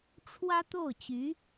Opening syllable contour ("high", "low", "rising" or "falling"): high